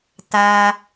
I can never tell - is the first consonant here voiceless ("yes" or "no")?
yes